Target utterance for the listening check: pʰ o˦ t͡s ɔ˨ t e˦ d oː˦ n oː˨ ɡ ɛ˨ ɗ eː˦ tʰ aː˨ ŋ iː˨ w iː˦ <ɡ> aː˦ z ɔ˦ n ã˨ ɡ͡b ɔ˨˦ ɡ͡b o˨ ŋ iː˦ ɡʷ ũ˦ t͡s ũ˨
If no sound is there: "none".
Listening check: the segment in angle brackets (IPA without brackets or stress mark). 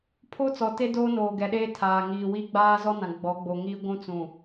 ɡ͡b